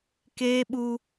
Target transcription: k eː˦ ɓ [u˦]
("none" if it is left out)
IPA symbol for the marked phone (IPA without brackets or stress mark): u˦